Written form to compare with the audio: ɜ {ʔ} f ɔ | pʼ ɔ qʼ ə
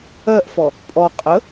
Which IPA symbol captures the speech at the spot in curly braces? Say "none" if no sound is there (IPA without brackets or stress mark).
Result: ʔ